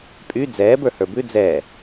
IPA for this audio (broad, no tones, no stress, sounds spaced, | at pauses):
pʼ y d͡z ɛː b ə˞ h ə˞ b ʉ d͡z ɛː